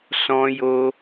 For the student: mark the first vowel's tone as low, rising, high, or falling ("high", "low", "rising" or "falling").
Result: high